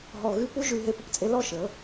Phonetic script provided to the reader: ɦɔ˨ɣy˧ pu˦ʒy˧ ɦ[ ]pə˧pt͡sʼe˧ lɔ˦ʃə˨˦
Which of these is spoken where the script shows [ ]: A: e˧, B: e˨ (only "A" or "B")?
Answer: A